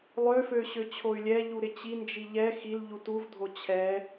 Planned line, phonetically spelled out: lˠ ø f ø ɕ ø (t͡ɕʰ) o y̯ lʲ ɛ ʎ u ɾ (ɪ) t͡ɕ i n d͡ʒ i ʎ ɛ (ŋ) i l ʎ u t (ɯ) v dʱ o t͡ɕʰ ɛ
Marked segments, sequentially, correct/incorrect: correct, correct, incorrect: x, incorrect: u

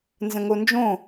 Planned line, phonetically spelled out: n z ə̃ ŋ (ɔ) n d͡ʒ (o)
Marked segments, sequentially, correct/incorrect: incorrect: o, incorrect: õ

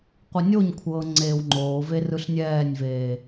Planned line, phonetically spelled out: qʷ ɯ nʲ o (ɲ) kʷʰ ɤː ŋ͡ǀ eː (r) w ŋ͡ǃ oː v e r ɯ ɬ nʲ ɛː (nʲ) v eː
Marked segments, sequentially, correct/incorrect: correct, incorrect: none, correct

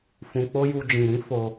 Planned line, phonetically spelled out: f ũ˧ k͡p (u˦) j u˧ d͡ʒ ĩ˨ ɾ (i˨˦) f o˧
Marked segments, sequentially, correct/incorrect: incorrect: o˦, incorrect: ĩ˨˦

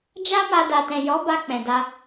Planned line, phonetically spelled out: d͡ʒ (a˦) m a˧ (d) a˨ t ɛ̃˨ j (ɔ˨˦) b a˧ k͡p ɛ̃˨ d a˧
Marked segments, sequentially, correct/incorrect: correct, correct, correct

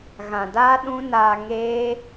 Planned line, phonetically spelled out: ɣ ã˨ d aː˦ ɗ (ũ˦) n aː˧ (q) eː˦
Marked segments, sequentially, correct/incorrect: correct, incorrect: ŋ

